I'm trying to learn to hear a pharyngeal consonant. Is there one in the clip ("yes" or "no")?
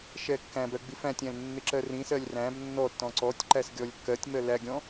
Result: no